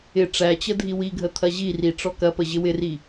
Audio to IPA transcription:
ɪ ʈ͡ʂæt͡ɕə dʱiwiɡʱə t̪ʰɐʑiri ʈ͡ʂɔkɐpə ʑɪwɪri

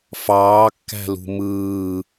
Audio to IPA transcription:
fɑːkːæ̤lṳ mɯː

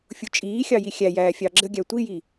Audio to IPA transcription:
fʲut͡ʃʼiːxʲɑ jixʲæjæː fʲɑɡ͡ǁəɡʲæ tʷiji

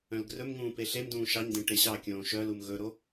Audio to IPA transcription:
œ̃lɡrɵmŋũː peɬemdũː ʃɑɲdẽ ʈeɕɑkʲõː ʃœlum ɣɵɾo

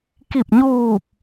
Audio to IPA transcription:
ki˧˩p̚ɲuː˧˩p̚

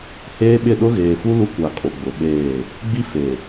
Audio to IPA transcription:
heː˦ɓɪ˦˨ ɗʊ˦ɣeː˨fu˦ lu˦kʷa˨ kʼo˨ ɡ͡bʊ˨ɓeː˦˨ | ɡ͡bi˦ fe˨

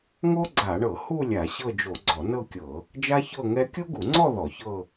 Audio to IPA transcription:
ŋo˥ɡ͡ǀa˧˩˧ɳɤ˧˩˧ hu˥˧ lʲa˧˩˧ɕɤ˥˧d͡ʒo˧˩˧ ɡ͡ǀɔ˧˩˧nɤ˥˧kʲɤ˧˩˧ | d͡ʒa˥çɤ˥˧ ŋɛ˥ kʲo˥ɡu˧˩˧ŋ͡ǀɔ˥˧ ðɔ˧˩˧çɤ˥˧

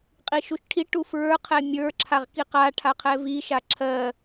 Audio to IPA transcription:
qʼiʃuʃʈʰiʈu fɹə˞qʰɛ mʲə˞ǁʰaʁ kiqaʈʰa qʰɛviʃa ǁʰɜ

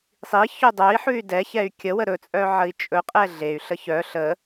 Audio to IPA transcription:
sˤi çɵdˤœi̯ħʉy̯ dɛçɛy̯ kʲəwə ɾɵt͡sʼœ ʕəi̯t͡ʃʼɵqʼɛ ɮey̯ɬə çœ ɬə

